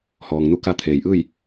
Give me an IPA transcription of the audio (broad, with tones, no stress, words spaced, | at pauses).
hɔː˩ŋnu˧˥ka˧ t̪ʰeː˩jʔɯː˥˨j